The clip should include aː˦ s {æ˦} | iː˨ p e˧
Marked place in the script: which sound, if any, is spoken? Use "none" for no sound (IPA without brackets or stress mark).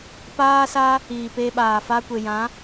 a˦